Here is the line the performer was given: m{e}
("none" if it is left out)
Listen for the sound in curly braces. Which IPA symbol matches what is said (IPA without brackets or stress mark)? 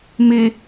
e